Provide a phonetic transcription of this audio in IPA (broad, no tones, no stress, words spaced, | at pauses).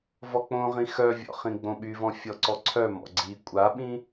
vɔk͡põʁĩ xœvʲɔ̰ χĩɡ͡bõɓyvɔ̃ fʲɔǀɔǀʰœmɔ̰ ɡ͡ǀi kʷʼaɓĩ